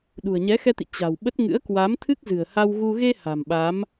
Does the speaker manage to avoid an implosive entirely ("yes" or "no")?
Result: no